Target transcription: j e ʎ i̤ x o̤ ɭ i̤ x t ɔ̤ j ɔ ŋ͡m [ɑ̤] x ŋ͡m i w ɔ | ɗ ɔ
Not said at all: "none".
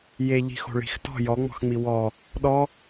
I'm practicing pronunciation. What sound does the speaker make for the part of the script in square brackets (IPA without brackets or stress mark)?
ɔ̤